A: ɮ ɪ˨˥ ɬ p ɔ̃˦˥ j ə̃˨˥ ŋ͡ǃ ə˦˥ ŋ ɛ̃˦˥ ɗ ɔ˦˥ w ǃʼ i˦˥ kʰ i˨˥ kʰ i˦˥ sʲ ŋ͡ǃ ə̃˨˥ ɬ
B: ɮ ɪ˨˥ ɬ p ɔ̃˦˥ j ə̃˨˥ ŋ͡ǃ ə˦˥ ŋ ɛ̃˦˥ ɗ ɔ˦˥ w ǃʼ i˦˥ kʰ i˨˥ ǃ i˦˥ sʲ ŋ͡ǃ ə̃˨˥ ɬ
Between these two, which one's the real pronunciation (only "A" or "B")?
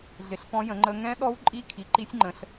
B